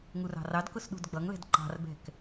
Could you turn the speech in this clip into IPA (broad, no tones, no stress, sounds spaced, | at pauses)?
ŋ u r ɑ̤ r ɑ d k ʊ s ɗ ṳ d ɡ͡b ʌ ŋ l ɛ̤ d ǃ ɑ̤ r b ɛ̤ k